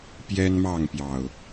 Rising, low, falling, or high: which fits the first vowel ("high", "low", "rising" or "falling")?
high